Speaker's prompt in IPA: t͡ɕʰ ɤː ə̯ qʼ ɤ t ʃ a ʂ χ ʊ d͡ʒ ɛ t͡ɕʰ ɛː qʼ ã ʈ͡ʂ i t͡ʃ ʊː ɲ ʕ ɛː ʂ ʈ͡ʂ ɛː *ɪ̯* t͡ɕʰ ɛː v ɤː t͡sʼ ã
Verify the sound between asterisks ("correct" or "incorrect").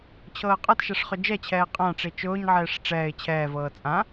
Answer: correct